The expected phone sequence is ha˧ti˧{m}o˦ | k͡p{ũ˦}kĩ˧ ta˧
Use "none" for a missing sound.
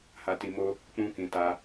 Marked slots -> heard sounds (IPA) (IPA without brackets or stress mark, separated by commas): m, ũ˦